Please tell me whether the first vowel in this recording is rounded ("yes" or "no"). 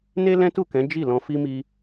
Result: no